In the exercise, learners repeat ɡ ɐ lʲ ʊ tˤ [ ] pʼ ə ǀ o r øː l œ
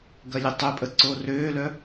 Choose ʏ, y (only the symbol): ʏ